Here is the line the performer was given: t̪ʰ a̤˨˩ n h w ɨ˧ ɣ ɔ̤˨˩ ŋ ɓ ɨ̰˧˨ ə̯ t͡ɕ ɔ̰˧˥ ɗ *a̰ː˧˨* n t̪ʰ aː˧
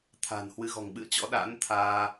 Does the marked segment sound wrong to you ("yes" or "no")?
yes